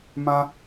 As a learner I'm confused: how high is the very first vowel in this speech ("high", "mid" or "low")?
low